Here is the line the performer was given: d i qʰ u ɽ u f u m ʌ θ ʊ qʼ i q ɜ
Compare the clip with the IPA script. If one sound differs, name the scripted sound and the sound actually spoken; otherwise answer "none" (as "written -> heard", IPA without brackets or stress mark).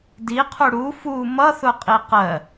none